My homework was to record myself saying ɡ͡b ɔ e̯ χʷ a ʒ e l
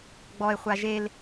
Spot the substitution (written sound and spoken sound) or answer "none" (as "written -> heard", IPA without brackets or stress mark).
none